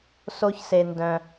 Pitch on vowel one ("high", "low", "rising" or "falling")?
high